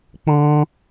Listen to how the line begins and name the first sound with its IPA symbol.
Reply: k͡p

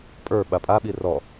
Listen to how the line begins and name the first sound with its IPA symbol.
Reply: pʼ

